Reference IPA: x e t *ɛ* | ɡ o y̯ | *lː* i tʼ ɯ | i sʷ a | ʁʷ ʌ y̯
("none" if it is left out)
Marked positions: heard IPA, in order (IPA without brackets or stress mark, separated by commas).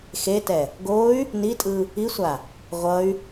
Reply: ɛ, n